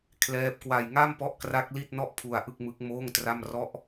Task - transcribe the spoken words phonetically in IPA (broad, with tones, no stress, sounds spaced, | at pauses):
kʰ l ɛː˦˥ p̚ k w a˧ j ŋ a˥˩ m p ɔ˦˥ ʔ k r a˦˥ k̚ l i˥˩ t̚ n ɔ˥˩ ʔ pʰ u˧ a̯ ʔ ɯ˥˩ k̚ m ɯ˦˥ k̚ m oː˥˩ ŋ t r a˥˩ m r ɔ˦˥ ʔ